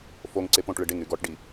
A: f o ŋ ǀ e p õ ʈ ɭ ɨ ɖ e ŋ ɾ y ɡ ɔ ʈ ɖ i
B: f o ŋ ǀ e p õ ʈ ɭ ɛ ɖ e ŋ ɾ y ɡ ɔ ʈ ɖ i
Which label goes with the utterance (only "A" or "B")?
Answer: A